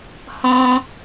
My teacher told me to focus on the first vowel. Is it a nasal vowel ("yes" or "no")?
yes